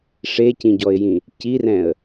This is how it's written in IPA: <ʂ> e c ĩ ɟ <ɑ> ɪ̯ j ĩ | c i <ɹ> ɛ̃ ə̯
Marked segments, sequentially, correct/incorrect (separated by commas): correct, incorrect, incorrect